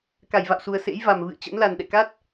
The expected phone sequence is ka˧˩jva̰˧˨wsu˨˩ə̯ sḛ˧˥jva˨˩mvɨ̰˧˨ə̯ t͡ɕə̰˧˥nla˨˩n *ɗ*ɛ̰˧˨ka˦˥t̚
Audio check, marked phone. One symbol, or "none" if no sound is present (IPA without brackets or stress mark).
ɗ